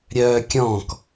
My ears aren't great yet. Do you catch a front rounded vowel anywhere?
yes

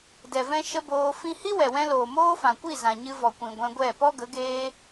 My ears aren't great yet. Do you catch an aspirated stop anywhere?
no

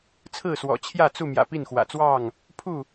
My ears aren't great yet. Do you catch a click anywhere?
no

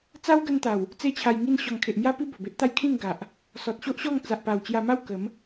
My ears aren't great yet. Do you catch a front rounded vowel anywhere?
no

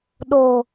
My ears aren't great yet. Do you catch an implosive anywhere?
yes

